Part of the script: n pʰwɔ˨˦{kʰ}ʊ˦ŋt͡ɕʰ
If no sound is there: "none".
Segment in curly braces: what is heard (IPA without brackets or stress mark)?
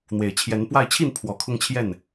kʰ